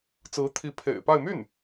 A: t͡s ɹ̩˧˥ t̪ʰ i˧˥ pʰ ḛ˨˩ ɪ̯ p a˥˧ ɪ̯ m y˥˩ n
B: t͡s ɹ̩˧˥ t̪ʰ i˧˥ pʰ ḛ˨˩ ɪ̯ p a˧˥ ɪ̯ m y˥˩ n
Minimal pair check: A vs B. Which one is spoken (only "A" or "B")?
A